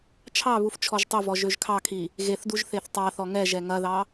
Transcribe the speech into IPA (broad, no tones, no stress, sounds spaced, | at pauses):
t͡ʃʰ ɑ β u f t͡ʃʰ ɔ ʒ tˤ ɵ v ɔ ʒ ø ʒ kʰ ɑ kʰ i | ɣ e θ d u ʒ θ e θ tˤ ɑ θ ɔ ŋ ɛ ʒ ɛ ŋ ɐ ð ɑ